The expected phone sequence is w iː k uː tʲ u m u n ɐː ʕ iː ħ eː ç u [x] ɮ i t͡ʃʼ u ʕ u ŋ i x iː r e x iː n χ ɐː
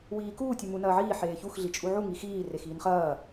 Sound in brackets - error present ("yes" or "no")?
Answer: no